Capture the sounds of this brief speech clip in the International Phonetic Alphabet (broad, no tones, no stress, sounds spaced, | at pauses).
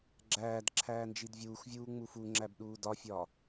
ɡ͡ǁ æː d ǁʰ æː n d͡ʒ i d vʲ uː x vʲ uː ŋ͡m u f u ŋ͡ǁ æ b ɗ uː d ɒ fʲ ɒ